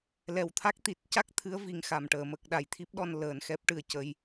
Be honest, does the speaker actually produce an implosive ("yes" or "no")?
yes